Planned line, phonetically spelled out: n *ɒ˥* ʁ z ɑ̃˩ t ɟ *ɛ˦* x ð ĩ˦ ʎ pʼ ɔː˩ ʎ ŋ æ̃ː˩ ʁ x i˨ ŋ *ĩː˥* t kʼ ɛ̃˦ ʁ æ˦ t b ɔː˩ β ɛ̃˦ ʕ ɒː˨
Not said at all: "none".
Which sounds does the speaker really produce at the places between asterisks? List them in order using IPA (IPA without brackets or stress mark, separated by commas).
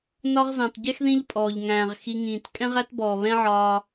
ɒ˦, ɛ˥, ĩː˩